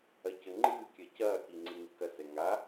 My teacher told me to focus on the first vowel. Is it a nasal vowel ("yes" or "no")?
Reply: no